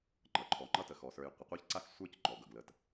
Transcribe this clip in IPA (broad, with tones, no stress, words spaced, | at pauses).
ŋ͡ǃʌ˩ǃʰɔ˩ŋ͡ǃʌ˥ tə˩xɔ˩sə˞˨j qʷə˩qʷa˥çǀa˥x sʷə˞˥cŋ͡ǃɔ˩ ɡʌ˩ɡlə˨t